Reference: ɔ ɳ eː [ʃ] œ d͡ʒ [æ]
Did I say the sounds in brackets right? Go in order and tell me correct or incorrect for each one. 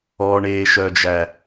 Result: correct, correct

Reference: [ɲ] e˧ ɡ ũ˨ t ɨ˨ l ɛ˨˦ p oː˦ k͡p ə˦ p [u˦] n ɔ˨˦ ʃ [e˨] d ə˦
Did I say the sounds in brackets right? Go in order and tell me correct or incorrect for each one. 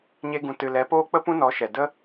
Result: correct, incorrect, incorrect

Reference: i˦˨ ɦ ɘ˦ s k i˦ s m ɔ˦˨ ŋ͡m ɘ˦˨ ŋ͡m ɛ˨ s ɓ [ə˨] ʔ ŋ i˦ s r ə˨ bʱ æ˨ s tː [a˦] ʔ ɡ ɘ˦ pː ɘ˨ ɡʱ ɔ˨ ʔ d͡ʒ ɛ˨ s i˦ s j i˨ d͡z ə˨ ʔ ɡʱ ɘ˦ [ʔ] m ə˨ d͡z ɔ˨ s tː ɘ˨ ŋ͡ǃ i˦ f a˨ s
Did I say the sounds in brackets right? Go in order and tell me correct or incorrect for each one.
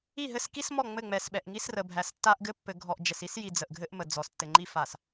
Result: incorrect, correct, correct

